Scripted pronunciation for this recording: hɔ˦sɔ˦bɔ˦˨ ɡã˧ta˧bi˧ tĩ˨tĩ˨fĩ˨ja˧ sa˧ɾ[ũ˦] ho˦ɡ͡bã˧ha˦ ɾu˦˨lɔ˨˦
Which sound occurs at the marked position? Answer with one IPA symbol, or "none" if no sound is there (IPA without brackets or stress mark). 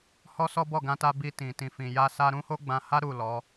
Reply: ũ˦